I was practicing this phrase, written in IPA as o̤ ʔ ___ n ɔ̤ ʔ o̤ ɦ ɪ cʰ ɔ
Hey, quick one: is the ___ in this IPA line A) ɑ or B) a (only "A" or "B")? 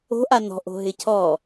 B